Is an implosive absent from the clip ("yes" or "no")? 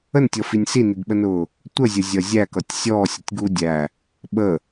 no